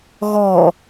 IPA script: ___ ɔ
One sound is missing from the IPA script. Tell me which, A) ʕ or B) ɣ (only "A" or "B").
B